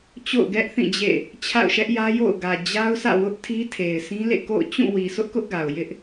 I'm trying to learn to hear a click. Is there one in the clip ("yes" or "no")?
no